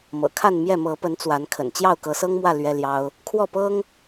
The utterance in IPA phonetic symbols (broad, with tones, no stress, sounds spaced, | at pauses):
m ɤ̰˨˩ kʰ a˥˨ n m j ɛ˥˨ m ɤ˨˦ p ə˨˦ n t͡s w a˨˦ n kʰ ə̰˨˩ n t͡ɕ j ɑ˥˨ ʊ̯ k ɤ˨˦ s ɤ˦ ŋ m w ä˥˨ l ɥ ɛ˦ l j ɑ˦ ʊ̯ | kʰ w ɔ˥˨ p ɤ˦ ŋ